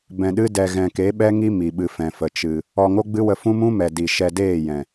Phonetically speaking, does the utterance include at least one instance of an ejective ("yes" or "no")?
no